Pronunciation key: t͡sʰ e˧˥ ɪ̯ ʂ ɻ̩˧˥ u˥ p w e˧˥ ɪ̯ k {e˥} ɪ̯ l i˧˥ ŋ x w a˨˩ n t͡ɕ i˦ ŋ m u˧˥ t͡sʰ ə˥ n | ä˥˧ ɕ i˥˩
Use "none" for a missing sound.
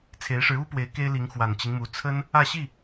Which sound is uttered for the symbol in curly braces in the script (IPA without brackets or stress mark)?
e˥